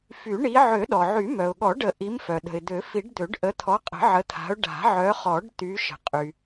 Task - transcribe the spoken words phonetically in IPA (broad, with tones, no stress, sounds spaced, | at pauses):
f y˨˩˦ ɳ i˨˦ ʕ ø˨˩˦ ɗ ɔ˩ ʕ y˨˩˦ m œ˩ ʊ̯ ɠ ɔ˨˩˦ ɖ ə˨˩˦ ʔ i˨˦ m f œ˩ ɗ ə̤˩ ɪ̯ d̪ ø˨˩˦ f i˨˩˦ ɖ d̪ ø˨˩˦ ɖ ʔ ə˨˦ t̪ʰ ɔ˨˦ qʼ ə̤˨˩˦ ʕ ə˨˦ t̪ʰ a̤˨˦ ʊ̯ ɖ a̤˨˩˦ ʕ œ˨˦ χ ɔ˨˩˦ ɖ t̪ y˨˦ ʃ ə̤˩ qʼ y˩